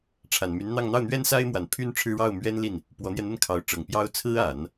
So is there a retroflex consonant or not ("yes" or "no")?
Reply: yes